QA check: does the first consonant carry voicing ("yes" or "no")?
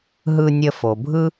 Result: yes